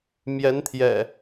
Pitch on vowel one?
rising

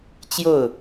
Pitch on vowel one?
falling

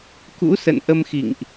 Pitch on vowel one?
rising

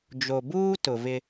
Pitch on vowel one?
low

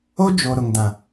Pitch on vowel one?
high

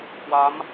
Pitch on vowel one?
rising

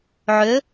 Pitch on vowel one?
rising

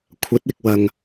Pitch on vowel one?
rising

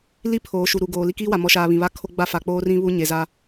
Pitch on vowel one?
high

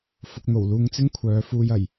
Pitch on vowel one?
low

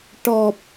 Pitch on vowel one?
low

